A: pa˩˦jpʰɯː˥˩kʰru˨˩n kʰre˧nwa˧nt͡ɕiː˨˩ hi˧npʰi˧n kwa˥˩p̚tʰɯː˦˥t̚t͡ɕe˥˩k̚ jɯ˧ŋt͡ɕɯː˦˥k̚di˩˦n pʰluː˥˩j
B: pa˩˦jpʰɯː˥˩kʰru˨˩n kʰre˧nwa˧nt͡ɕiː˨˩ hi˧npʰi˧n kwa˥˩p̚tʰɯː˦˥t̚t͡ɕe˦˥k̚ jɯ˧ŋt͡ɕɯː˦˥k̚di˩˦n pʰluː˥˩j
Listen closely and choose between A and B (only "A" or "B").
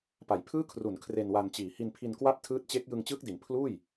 B